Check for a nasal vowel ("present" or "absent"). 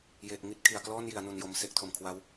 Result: absent